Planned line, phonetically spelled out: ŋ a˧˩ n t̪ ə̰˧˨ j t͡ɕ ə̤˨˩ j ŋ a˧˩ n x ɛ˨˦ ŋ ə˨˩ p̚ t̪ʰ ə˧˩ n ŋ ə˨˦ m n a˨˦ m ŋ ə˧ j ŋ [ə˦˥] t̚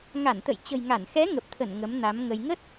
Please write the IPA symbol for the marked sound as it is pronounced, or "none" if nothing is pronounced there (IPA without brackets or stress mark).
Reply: ə˦˥